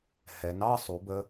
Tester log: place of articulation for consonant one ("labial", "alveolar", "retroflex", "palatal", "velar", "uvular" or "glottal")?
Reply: glottal